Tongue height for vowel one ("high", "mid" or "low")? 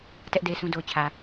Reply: mid